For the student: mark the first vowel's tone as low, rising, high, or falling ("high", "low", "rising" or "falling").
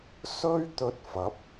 high